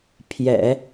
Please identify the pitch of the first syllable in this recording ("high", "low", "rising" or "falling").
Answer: low